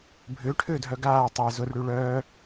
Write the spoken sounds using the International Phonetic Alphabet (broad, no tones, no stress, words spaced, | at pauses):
bʱʏːʈʰʏːdʱœ ɡaː tˤɛ zʊrɽy ɭœː